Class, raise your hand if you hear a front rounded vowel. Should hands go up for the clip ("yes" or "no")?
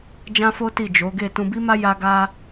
no